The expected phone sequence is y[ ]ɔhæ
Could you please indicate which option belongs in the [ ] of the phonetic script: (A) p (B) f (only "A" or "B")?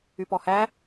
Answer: A